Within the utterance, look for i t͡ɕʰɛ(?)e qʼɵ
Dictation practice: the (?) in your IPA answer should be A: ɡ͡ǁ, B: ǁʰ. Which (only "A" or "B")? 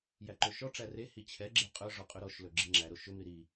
A